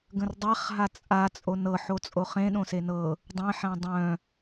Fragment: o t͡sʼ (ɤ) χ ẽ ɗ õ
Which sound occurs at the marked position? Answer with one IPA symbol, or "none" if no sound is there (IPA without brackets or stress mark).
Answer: o